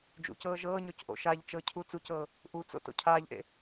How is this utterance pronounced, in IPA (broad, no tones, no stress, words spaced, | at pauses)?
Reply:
d͡ʒṵcɤː ʒɤːɲɔc ʔo̰ʃaʎt͡ʃɤ cʰut͡sucɤː | ʔut͡so̰ to̰cʰaːʎʔḛ